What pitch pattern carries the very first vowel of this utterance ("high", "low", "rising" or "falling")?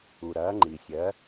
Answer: low